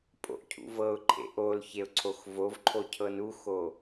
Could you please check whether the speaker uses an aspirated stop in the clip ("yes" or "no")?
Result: yes